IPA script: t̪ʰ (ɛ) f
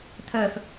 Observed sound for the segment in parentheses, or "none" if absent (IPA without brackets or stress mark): œ